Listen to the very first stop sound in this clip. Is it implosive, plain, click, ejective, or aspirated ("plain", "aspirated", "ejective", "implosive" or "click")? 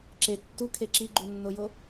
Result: click